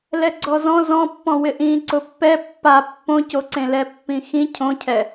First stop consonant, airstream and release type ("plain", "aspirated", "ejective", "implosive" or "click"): click